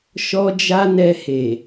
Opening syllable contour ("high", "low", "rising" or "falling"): high